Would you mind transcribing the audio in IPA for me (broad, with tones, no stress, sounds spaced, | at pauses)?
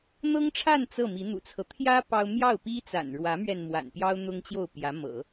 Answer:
n̪ ɤ˥ ŋ ʈ͡ʂʰ a˥˧ n t͡s ɤ˥˩ m i˧˥ n̪ ṵ˨˩ t͡sʰ ɤ˦ t̪ʰ j ä˥ p ɑ˥ ʊ̯ m j ɑ˥˩ ʊ̯ p i˥ t͡s a̰˨˩ n ɻ w ä˧˥ m ɥ ɛ˧ n m w a̰˨˩ n p j ɑ˥ ʊ̯ n̪ ʊ˥ ŋ t͡ɕ j o˥˩ ʊ̯ p j ä˧˥ m ɤ̰˨˩˦